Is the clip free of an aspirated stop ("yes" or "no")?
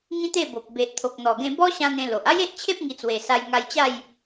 no